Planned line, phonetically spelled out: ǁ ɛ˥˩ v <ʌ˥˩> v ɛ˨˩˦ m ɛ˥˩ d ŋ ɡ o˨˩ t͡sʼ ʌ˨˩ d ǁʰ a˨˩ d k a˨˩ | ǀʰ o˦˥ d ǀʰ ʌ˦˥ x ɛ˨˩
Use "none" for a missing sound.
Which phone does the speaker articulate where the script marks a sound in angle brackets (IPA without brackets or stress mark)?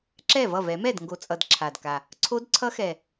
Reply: ʌ˥˩